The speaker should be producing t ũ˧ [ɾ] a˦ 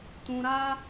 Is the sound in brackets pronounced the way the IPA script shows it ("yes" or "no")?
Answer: yes